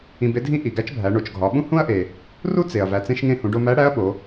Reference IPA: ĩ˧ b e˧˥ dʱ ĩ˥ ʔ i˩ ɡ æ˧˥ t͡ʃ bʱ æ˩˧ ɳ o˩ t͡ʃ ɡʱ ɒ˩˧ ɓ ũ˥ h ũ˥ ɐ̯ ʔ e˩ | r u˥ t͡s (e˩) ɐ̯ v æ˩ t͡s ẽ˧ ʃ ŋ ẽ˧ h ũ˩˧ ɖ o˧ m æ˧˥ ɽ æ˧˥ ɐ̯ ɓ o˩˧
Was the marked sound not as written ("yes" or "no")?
no